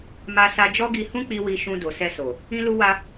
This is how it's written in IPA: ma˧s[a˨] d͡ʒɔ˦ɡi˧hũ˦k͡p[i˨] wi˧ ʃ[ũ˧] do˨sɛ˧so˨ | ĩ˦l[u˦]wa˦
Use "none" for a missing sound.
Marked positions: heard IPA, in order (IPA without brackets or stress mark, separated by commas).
a˧, i˧, ũ˧, u˦